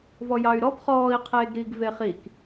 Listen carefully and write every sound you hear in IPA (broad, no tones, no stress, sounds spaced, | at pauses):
v ɔ j ɑ y̯ ɾ ɔ b χ ɔː i̯ qʰ eː ɡ ɾ iː ɡ v e χ i k